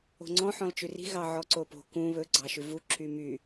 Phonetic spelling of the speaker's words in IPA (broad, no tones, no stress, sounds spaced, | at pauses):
o̤ ŋ͡ǀ ɔ̃ ħ ɔ̃ l t͡ʃ ʉ r i̤ ɣ ɑ ʕ ɔ ǀ o p o̤ k ũ β ɵ ɡ͡ǀ ɑ ʃ ʉ v u ǁ y m y